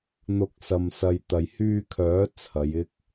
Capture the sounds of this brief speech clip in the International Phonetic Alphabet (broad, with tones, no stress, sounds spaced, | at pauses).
n̪ ʊ˨˥ k̚ s ɐ˨ m s ɐ˨ j t̪ ɐ˨ j h yː˧ kʰ œː˨˥ t͡sʰ ɐ˨˧ j ɪ˥ k̚